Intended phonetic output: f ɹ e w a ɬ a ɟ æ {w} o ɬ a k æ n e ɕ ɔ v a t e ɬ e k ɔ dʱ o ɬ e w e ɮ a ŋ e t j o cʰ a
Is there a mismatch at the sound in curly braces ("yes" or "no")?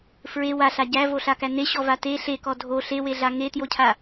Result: yes